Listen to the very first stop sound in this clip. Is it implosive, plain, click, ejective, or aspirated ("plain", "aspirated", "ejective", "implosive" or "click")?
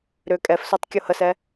ejective